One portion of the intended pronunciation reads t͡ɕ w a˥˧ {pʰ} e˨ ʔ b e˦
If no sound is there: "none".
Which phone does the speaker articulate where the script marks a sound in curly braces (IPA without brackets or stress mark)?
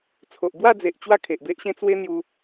kʰ